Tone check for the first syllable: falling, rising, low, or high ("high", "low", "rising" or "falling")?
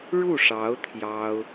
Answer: falling